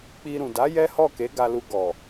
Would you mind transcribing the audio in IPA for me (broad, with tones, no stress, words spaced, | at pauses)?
k͡pi˧ ɾũ˨da˨˦ jɛ˦hɔ˦˨ke˨˦ ɡa˧lu˧ ɡɔ˨